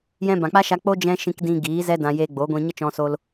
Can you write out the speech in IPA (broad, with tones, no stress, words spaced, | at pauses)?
jɛ̃˧bã˨k͡pa˦ʃa˧ k͡po˦ d͡ʒɛ̃˦ ʃĩ˧kdĩ˧ ɡiː˨˦zɛ˦dã˧ je˧ɡ͡bo˨˦ɡʷĩ˧ ɲə˦ t͡ʃɔ̃˧so˧l